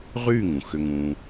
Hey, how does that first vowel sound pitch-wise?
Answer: falling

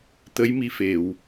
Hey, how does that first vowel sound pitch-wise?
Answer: rising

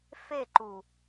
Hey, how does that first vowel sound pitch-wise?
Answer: falling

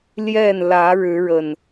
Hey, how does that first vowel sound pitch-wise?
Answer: falling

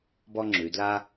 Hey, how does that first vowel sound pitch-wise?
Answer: high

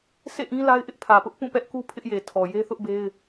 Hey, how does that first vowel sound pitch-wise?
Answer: falling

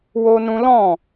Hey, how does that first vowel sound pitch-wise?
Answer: high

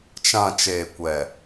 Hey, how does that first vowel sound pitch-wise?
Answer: low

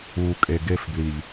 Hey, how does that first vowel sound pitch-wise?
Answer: low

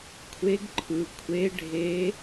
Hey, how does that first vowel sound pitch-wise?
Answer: rising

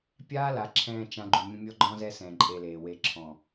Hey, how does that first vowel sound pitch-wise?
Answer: high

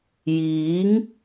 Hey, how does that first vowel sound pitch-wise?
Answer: rising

